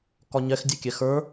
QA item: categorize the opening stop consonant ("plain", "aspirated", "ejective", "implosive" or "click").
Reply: plain